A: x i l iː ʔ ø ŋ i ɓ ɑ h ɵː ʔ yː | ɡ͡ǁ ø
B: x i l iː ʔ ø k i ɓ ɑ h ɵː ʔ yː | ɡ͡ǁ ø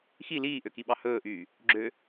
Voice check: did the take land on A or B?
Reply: B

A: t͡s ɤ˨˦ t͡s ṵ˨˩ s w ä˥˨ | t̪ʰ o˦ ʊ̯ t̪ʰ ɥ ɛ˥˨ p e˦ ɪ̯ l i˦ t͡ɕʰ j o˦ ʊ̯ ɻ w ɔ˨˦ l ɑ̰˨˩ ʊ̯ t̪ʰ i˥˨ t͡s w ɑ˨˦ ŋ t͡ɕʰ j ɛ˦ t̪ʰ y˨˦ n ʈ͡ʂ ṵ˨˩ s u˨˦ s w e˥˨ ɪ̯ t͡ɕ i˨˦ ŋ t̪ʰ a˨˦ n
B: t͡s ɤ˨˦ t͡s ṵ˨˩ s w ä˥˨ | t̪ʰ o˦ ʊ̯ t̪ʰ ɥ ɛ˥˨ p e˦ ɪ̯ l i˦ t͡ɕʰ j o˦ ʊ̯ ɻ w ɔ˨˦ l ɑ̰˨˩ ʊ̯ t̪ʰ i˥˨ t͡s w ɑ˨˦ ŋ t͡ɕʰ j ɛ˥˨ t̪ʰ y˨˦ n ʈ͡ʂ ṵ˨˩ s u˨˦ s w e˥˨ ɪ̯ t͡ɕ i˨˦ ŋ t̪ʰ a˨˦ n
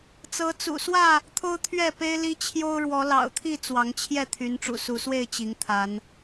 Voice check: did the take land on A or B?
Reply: B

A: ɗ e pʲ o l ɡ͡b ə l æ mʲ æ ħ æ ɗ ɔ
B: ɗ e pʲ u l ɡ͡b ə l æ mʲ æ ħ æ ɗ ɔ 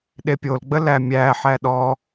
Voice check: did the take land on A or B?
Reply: A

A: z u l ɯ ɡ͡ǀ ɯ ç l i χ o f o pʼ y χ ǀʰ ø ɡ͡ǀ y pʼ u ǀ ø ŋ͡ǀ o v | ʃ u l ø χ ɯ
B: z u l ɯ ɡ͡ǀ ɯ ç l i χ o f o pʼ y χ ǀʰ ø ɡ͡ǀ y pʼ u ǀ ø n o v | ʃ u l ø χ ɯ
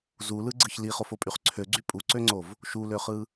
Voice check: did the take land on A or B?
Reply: A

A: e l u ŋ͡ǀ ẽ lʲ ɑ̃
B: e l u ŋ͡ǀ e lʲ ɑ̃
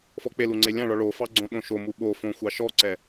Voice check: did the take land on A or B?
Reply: B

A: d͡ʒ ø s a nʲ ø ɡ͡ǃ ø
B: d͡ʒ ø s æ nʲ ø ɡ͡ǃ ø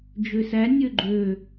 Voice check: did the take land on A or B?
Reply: B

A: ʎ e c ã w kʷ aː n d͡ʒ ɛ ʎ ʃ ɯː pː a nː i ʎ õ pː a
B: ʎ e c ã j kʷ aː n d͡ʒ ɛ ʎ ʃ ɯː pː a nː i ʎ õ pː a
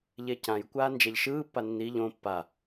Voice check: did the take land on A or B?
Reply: B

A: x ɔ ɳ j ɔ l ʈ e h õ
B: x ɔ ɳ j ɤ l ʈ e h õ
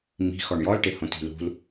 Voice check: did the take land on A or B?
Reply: A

